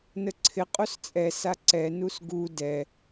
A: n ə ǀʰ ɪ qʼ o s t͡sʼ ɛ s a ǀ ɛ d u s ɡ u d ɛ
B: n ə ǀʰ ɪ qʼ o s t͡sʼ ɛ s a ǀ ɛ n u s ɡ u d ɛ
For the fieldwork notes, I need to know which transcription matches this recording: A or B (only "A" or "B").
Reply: B